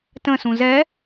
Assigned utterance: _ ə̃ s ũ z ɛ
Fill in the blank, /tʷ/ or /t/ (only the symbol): t